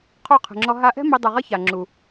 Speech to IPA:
qʰo˦˨qʰɛ̤˨ŋ͡ǁɔ˧ ɦa˧ʔɛ̤˦ mi˧dˤu˨ʁʌ˦ ça˨ŋ͡ǁu˨

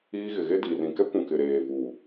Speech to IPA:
iː˦ ɣɪ˨ɣe˦ di˨ rĩ˨kɛ˦kʷũ˨ kɪ˨ɾeː˨vuː˨

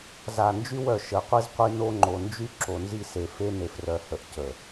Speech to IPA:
za˨nd͡ʒy˦wœ˨ ʃə˨qʷi˦zqʷi˦ no˦ŋ͡ǃo˨nd͡ʒy˦ ǁo˨nzi˦se˨ fe˦ne˨frœ˨hə˨ʔ cə˨

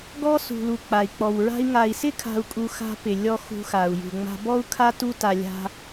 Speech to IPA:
ɡɔ˦ sṳ˨lu˨ k͡pa˨i̯k͡pɔ˨wɹa̤˦i̯ ŋa˨i̯sɪ˦kʰa̤˨u̯kʼu˨ xa̤˦pɪ˨ lʲɔ˦ xṳ˦xa˨u̯ jṳ˨ŋ͡ma̤˦ bɔ˦u̯kʰa˦ tu˦ta˨ lʲa̤˦

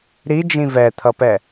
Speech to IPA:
ɾid͡ʒĩ vɛt̪ʰʌpɛ

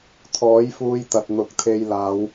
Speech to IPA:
t̪ʰɔː˨˥jfuː˧jt̪ɐ˨t̚ n̪ʊ˨k̚t̪ʰe˧jlaː˨˧w

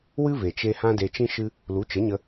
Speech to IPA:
wɨ˦ve˨t͡ʃe˧ hã˦de˧t͡ʃĩ˦ ʃɨ˦ | lu˨˦t͡ʃə˨˦ɲə˧

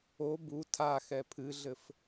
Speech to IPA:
o bu tʰaxɛ pʰɨɮɘf

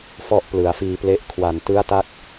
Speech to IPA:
fɔ˥˩ʔ plɯ˩˦a̯fiː˧ple˦˥ʔ kʰwa˨˩ntɯ˦˥a̯ta˦˥k̚

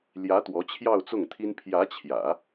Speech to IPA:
ljä˧˥ t̪wɔ˧˥t͡ɕʰjɑ˥˧ʊ̯t͡sʊ˥˩ŋt̪ʰi˥n pʰjä˧˥t͡ɕʰjä̰˨˩˦

